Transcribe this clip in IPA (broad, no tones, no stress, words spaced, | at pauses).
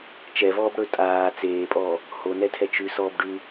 t͡ʃɛvɔːb ɽɵ tʼaː t͡seːpʼɔː | honɛtʰɛ t͡ʃʉsɔːb ɖʉ